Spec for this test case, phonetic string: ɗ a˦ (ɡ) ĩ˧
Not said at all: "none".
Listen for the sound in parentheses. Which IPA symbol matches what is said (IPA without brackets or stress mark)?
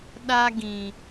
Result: ɡ